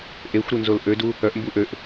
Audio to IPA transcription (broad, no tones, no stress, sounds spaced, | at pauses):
ʔ e xʷ ɾ u n z o l ʔ ø d u | œ ʔ m b u ʔ ø ʔ